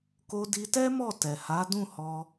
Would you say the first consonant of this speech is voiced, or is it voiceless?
voiceless